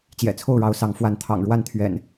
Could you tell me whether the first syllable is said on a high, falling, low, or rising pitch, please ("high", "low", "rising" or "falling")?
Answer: low